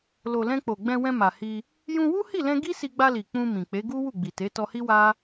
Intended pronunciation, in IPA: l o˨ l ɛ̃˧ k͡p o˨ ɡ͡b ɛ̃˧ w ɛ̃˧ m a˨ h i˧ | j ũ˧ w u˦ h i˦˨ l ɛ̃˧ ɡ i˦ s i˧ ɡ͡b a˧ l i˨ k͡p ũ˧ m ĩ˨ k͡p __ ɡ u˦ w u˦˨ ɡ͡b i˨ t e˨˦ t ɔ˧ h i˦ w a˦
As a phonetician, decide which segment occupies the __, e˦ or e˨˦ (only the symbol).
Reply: e˨˦